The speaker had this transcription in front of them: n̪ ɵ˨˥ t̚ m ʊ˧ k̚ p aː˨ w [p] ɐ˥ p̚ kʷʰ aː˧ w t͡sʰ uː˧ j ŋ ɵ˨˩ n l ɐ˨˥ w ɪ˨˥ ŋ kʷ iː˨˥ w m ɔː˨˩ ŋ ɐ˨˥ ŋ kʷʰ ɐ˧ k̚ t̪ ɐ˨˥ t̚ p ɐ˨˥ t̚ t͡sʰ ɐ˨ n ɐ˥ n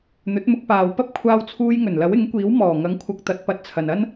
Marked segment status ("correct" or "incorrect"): correct